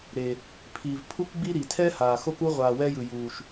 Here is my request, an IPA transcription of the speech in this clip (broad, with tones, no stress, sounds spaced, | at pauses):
ɾ eː˩ | pʰ i˩ v pʰ u˥ k ɡ͡b i˥ ɾ i˩ tʰ ɛ˥ h aː˩ x o˧ k u˧ ʁʷ aː˩ w ɛ˧ j ɯ˩ j uː˩ ʃ